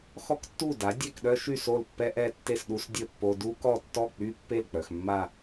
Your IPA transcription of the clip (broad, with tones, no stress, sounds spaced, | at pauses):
x ɔ˥ k tː u˥˩ d a˩˥ dʲ ɛ˥˩ k ɗ œ˥ ʃ y˥˩ s o˥˩ l pː ɛ˥ ʔ ɛ˥˩ tː e˥˩ s ɗ u˧ s dʲ ə˥˩ pː o˧ d u˥ k ɔ˥˩ tː ɔ˥˩ k͡p y˥ pː e˥˩ l k͡p œ˩ x mː a˥˩